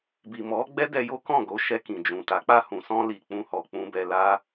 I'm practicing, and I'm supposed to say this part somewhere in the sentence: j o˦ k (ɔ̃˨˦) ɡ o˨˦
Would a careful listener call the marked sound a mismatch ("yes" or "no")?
yes